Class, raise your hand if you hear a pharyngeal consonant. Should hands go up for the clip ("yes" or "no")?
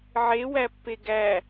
yes